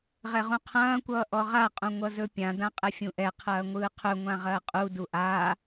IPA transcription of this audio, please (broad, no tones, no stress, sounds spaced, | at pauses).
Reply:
ʁ ɛ ʁ ũ qʰ ɐ̃ː kʷ ʌː ʔ ɔ ʁ a qʼ ũ ŋʷ ʌ z ɵ pʲ ã d ã qʼ ɛ fʲ ũ ʔ ɛ qʰ ɐː ŋʷ ɯː qʰ ɵ ŋʷ ã ʁ ɐː qʼ u d u ʔ a